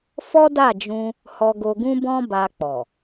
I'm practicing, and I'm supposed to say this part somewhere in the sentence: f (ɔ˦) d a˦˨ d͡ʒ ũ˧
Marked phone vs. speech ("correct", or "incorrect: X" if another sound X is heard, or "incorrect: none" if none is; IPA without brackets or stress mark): correct